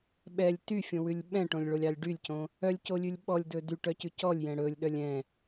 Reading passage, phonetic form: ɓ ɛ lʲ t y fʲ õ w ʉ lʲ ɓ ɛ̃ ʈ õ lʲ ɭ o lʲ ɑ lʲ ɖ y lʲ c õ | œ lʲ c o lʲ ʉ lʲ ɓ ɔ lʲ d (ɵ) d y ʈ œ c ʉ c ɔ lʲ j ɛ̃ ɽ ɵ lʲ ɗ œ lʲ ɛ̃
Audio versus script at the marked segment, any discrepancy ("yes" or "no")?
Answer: no